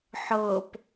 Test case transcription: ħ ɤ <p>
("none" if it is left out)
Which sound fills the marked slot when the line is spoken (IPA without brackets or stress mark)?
p